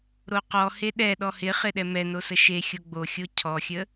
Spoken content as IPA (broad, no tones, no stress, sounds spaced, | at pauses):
ɾ o q ɔ h e ɗ ɛ ɗ ɔ h ɪ χ ɪ ɗ ɛ m ɛ n o s ə ʃ e xʲ o ɡ͡b o xʲ o cʰ ɔ xʲ ə